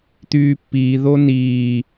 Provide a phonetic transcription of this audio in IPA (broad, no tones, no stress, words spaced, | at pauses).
t̪yːpːiːðo niː